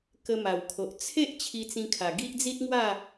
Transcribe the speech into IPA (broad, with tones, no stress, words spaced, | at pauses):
kə˧ma˨˩wkʰo˨ʔ t͡sʰe˦ʔ t͡ɕʰi˧t͡sĩ˧kʰa˨˩ ɡi˦ʔd͡zi˦t̚ŋwa˥˧